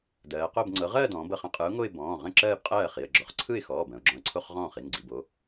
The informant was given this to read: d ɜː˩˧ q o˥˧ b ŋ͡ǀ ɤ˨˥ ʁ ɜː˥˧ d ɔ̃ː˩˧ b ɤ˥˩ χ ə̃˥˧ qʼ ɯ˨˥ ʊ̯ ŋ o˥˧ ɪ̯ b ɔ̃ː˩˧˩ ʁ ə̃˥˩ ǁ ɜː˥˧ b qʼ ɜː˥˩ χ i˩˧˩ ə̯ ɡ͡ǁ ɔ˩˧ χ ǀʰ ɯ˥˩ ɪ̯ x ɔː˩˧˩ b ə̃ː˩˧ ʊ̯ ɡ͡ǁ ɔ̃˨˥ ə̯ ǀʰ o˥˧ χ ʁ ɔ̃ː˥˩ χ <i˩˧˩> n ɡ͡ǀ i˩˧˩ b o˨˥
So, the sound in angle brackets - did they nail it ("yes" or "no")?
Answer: yes